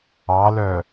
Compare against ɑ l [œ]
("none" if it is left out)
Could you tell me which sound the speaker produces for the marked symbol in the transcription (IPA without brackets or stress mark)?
œ